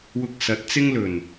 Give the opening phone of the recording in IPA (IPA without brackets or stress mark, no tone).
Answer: w